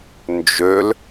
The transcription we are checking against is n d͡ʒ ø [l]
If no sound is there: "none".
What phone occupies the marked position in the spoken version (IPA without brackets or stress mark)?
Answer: l